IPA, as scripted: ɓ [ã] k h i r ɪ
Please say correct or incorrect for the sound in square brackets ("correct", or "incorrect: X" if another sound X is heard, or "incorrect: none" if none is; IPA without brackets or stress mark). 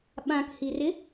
correct